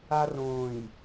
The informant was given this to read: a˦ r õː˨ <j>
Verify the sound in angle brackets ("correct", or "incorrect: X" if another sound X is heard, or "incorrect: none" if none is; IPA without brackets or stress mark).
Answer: correct